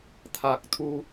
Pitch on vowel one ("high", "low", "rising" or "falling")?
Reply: low